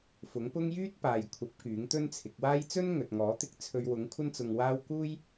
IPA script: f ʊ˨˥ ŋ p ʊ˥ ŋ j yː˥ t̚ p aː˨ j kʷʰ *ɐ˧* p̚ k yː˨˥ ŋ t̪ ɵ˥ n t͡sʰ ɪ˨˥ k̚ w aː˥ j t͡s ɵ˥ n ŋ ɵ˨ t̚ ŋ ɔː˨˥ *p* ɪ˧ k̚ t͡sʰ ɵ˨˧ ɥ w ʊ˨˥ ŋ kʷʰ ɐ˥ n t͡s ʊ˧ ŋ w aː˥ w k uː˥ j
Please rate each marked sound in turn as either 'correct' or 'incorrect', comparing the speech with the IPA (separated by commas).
incorrect, incorrect